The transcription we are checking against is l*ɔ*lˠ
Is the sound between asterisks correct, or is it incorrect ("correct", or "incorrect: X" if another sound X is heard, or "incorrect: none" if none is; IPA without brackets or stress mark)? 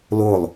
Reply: incorrect: o